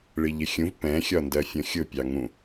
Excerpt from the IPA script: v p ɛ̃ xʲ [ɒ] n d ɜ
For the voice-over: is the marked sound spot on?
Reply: yes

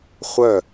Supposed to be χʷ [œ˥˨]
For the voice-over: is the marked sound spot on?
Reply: yes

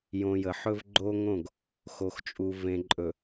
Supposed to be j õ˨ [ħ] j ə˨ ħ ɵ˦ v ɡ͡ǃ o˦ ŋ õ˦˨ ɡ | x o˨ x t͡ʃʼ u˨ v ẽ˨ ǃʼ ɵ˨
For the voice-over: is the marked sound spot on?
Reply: no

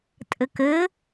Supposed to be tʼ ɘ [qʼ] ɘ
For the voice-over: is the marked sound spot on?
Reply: no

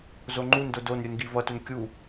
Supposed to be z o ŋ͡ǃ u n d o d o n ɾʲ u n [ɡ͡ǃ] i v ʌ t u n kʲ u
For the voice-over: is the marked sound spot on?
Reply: no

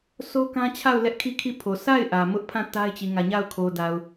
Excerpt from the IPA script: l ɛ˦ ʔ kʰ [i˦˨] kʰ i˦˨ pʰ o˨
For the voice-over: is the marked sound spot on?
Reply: yes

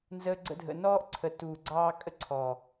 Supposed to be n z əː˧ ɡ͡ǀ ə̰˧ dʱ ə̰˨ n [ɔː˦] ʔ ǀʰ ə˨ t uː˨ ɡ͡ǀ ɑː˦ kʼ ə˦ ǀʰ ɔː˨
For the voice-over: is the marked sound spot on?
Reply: yes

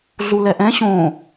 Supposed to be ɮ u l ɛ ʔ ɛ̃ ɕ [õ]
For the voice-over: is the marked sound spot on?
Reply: yes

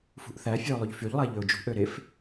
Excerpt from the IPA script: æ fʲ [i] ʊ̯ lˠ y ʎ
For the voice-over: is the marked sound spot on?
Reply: no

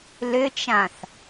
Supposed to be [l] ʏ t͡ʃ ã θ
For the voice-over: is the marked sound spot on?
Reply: yes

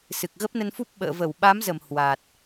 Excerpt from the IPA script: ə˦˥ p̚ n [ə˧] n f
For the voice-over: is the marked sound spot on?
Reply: yes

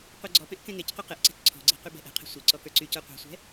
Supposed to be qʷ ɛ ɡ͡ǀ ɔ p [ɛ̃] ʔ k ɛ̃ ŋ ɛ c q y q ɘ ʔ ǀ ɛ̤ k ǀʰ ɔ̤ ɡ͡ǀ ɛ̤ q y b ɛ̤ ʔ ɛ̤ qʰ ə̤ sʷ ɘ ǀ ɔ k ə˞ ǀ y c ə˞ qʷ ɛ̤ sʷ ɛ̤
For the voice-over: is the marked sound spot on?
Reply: yes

